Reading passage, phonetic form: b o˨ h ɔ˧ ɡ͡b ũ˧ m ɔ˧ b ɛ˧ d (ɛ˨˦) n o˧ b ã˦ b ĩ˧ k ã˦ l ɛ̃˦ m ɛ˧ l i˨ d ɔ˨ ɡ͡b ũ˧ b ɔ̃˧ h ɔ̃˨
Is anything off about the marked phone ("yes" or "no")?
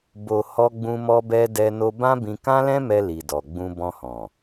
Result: yes